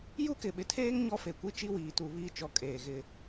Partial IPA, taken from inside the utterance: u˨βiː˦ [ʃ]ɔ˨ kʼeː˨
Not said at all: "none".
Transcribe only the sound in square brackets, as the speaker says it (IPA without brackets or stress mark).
t͡ʃ